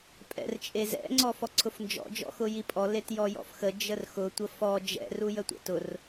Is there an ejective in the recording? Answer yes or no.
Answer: yes